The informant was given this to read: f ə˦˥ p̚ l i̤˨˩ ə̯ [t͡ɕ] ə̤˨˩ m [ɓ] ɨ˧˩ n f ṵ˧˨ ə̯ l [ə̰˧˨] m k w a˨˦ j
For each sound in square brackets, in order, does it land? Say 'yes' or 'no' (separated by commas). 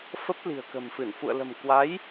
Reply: no, no, no